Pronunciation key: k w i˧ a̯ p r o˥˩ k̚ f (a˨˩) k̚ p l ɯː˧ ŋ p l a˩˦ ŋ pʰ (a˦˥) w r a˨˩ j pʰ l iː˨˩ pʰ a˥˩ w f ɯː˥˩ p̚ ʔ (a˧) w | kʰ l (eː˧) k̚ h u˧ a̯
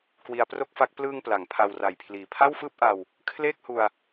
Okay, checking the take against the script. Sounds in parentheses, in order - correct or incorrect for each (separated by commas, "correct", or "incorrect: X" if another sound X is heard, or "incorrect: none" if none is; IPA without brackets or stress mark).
incorrect: a˦˥, incorrect: a˧, correct, incorrect: eː˥˩